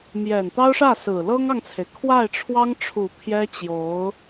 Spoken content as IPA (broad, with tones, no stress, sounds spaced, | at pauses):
m j ɛ˨˩ n t̪ ɑ˥ ʊ̯ ʂ ä˥˩ s ɹ̩˨˩ l ɤ˥ ŋ ɑ˨ ŋ t͡sʰ e˩ ɪ̯ kʰ w a˥˩ ɪ̯ ʈ͡ʂʰ w ɑ˥ ŋ ʈ͡ʂʰ u˨˩ pʰ j ɛ˥ t͡ɕ j o˧˥ ʊ̯